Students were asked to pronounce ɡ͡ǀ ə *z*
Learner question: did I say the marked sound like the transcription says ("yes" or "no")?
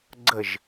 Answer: no